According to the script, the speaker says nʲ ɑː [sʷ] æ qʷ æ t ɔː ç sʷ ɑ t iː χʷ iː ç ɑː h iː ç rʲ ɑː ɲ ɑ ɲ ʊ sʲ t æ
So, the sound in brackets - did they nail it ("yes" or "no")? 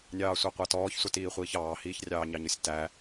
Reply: yes